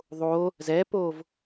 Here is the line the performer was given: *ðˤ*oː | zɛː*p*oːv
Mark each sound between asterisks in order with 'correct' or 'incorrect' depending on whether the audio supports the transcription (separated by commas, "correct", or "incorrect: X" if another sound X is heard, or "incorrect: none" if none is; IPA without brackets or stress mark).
correct, correct